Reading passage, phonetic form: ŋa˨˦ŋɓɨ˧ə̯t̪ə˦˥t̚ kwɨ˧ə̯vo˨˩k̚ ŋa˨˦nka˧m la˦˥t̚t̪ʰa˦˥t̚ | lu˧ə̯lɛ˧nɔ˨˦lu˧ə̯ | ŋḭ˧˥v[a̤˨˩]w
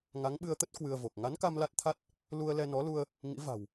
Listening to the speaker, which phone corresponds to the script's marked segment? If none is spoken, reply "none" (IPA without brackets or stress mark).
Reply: a̤˨˩